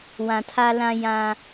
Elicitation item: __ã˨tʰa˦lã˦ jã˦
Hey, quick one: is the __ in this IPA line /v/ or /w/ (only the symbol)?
w